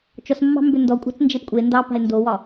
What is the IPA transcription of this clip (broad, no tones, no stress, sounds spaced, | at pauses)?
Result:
t͡ʃ ɔ s mː ɑ̤ m b ʏ n d ɔ kʷʼ ɑ̤ t͡s n d͡ʒ e p kʷʼ e n d ɑ p a̤ ɪ̯ n d o w ɒ